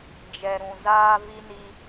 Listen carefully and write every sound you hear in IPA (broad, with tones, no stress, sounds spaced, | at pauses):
d͡ʒ ɛ˨ ɾ ũ˨ z aː˦ v i˦ n i˦